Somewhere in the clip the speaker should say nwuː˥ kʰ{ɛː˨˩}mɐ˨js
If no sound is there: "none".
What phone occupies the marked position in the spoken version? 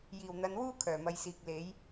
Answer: œː˨˩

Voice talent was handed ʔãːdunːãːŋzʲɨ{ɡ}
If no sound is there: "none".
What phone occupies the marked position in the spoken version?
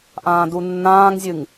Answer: ŋ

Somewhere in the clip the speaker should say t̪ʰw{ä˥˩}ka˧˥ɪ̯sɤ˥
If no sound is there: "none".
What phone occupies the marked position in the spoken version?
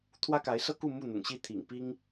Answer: ä˥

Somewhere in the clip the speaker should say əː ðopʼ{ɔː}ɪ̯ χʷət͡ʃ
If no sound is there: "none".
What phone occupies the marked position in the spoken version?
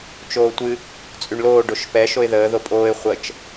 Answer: oː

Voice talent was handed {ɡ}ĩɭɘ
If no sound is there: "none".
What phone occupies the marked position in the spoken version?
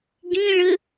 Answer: ɡ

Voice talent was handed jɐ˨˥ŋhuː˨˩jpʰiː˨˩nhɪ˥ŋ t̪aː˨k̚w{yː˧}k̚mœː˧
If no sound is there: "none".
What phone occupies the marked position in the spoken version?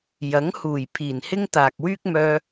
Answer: yː˥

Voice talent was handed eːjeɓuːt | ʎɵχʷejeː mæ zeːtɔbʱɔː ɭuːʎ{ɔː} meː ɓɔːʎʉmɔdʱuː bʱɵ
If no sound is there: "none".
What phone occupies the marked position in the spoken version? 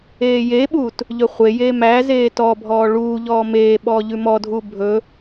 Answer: ɔː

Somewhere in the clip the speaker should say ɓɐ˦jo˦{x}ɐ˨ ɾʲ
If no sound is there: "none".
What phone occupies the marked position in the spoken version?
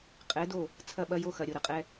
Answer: x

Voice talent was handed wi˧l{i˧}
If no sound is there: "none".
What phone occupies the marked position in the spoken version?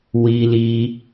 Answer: i˧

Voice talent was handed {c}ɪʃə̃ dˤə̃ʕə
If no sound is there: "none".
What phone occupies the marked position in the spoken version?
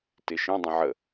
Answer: t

